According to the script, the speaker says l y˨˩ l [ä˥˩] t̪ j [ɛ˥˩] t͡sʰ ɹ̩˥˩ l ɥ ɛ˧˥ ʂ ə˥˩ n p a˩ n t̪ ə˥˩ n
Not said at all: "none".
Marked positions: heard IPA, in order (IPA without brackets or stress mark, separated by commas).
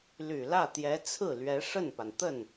ä˥˩, ɛ˧˥